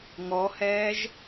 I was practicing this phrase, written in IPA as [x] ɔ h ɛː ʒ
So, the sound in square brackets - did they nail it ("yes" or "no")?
no